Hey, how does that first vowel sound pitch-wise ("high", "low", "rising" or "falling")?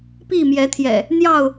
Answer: falling